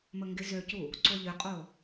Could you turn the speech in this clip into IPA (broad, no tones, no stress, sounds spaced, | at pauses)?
m ə ŋ ɡ ɪ z ø c u | ǀ o ʎ ʏ qʼ o